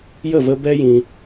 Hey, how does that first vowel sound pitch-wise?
falling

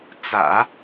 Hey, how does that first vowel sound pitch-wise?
low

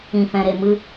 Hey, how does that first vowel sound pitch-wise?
low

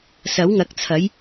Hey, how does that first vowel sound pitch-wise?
rising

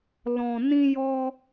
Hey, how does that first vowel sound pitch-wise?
low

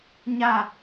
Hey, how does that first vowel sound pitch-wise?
falling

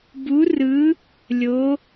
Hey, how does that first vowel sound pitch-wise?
rising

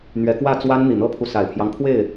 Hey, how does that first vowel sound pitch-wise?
rising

